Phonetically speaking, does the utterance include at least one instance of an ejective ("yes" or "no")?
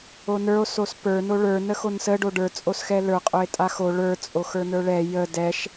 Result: yes